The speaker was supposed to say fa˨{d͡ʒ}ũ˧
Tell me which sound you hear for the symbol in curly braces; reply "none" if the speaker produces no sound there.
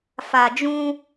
d͡ʒ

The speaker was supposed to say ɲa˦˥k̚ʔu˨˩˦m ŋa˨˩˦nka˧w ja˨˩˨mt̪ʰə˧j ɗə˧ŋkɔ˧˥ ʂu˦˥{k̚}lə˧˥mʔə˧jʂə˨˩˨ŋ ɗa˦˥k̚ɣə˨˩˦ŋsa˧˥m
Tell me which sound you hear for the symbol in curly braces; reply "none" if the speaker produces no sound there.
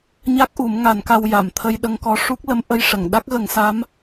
k̚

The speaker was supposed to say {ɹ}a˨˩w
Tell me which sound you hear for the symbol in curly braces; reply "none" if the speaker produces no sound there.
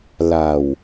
l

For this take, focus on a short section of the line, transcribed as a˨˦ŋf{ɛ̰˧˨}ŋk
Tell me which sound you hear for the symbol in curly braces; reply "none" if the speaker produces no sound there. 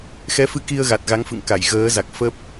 ɨ̰˧˨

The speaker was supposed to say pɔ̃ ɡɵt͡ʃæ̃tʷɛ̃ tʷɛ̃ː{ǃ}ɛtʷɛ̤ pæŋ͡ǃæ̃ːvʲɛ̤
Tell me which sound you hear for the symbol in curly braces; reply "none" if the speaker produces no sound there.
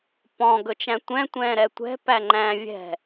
ɾ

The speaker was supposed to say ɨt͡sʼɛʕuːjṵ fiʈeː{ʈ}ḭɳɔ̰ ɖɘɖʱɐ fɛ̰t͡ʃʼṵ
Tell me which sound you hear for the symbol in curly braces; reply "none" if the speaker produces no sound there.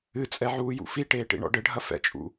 ʈ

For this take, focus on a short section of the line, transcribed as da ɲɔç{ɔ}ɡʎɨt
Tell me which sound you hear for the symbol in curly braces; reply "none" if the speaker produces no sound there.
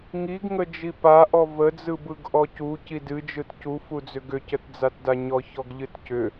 ɔ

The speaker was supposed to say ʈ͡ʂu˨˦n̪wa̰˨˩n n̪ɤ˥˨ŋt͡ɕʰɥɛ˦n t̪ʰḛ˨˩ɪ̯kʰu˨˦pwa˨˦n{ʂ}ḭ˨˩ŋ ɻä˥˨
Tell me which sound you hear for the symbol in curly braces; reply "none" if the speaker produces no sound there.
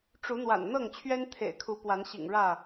ɕ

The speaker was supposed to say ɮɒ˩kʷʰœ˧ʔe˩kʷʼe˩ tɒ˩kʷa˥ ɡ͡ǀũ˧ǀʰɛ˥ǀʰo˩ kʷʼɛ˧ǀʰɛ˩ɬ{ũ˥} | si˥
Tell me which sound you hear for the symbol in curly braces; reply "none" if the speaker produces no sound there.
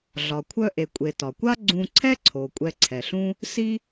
ũ˥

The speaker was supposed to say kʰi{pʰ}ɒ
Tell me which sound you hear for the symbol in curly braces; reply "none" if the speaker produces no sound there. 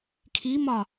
m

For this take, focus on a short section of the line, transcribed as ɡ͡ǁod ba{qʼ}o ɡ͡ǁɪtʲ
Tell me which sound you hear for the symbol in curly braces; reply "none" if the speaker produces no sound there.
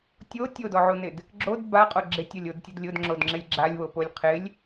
qʼ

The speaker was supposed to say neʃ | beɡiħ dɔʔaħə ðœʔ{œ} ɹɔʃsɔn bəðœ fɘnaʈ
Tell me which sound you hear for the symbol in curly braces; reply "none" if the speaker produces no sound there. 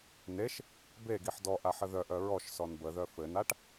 œ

